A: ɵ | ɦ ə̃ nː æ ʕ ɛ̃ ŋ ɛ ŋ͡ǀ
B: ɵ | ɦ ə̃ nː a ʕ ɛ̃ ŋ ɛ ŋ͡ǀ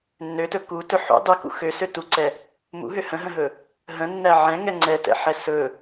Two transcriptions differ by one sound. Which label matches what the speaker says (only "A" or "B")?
A